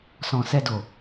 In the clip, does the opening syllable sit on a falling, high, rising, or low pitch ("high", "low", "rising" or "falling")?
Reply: low